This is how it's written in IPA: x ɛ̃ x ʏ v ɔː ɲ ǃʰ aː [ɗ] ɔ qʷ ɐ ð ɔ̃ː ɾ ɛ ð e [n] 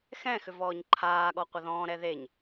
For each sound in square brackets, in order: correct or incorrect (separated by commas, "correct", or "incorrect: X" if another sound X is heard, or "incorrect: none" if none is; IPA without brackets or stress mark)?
incorrect: ɠ, incorrect: ɲ